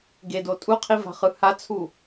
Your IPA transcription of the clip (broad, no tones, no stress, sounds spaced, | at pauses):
ɡ e d o tʼ u qʰ i v a̤ χ ɯ h a t͡sʰ u